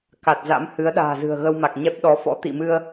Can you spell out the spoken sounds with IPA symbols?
ka˨˩t̚za̰˧˥m hɨ˨˦ə̯ ɗa̤ː˨˩zɨ̤˨˩ə̯ɣə˧w ma˨˩k̚ɲɛ˦˥p̚ɗɔ˨˦ fɔ̰˧˥t̪ḭ˧˨mɨ˧ə̯

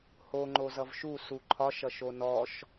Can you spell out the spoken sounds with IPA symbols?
ho ŋ͡ǃozʌvʃu suǃʰɒʃ ʌʃonɔʃ

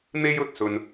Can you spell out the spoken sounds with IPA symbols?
n̪e˥jɵ˨t̚sɵ˧n

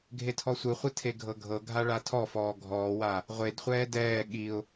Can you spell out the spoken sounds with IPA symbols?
ɡʱetʰɔsʷɯχʷɯ tʰeɡʱɤɡʱɤɡʱa ɭatʰɔfɔː ɡʱɔːwa | ʁʷedχʷɛː dɛː ɠiʊ̯

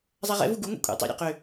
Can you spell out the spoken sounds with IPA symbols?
zˤaʁɛ̰vu ɡuŋʷḭ kʷʼɛ̰ tˤḭ ɾʲɔ̰qø

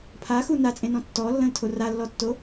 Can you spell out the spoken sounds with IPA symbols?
pʰaxu nat͡sʼẽnɔ̃ tːɔlːə̃ltʰo ralːɔtːo

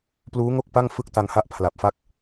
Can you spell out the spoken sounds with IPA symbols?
pluː˦˥ŋo˥˩k̚pa˥˩ŋ fɯ˥˩k̚ta˧ŋha˥˩ʔ pʰla˨˩p̚fa˥˩k̚

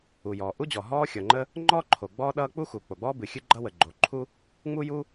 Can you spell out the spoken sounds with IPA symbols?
u˩jɔː˩ʔu˥d͡ʑɔ˩ ɦɔː˥xʲʌ˩ŋ͡ǃə˥ | ŋ͡ǃɔ˥ ǃʰo˩ɡ͡bɔː˥ɗʌː˥ k͡pu˥xu˩k͡po˩ɡ͡bɔː˥ bɨ˩ xʲɨ˥ɡ͡ǃʌ˥ wə˩ɡ͡ǃo˩ ǃʰu˥ | ŋ͡mu˥ju˥

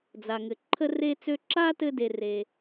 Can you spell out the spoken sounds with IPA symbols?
d͡za˨ŋɘ˨ ǃʰə˥re˥t͡sø˥ ǁa˥tɘ˦ de˥re˥

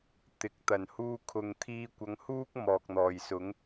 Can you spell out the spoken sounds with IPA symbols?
t̪ɪ˨˥k̚t̪ɐ˨˩n huː˧ kʰʊ˨ŋt̪ʰiː˧kʷɐ˨˧ŋhuː˥k̚ mɔː˨k̚n̪ɔː˨˩jsʊ˨˥ŋ

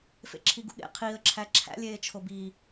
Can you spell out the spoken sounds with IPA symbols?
fḛǁʰiɡṵɠḛ qʰiə̯ ǁʰæǁʰæ̰lʲeːt͡ʃʰo bi

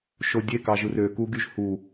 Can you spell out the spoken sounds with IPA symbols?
ʃodʲe kɑʒɯrø kuɡyʒhu

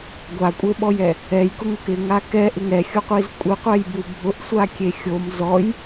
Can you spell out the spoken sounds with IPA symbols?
ɡʷakʷʼeɓɔjɛ | ɛjkʊŋʊk ɪŋa kɛʔɪŋ ɛxʲuqʷiz kʷʼɪqʷɛjbu bʱʊʔsʷakʲe xʲom zɔj

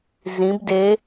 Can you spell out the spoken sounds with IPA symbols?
zĩb de

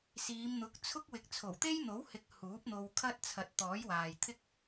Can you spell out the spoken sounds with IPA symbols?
siː˨˧mn̪ʊ˨˥k̚t͡sʰʊ˥k̚wɪ˨˥k̚ t͡sʰo˨˩wt̪e˥jn̪o˨˥whɪ˨˥k̚ huː˨˥p̚n̪o˧w kʰɐ˥t̚t͡sʰɐ˨˥t̚ t̪ɔː˨˥jwaː˨jt̪ʰɪ˥k̚

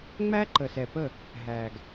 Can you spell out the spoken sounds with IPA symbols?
ŋ͡mæ˦ǃə˨sɛ˨pə˦˨ | ɦæ˨ɡ

